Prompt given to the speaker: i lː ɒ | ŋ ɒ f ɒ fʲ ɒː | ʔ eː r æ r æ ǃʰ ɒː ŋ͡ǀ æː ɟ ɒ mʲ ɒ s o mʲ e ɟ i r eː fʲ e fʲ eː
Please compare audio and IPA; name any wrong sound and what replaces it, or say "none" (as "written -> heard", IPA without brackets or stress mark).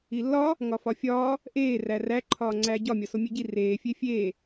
none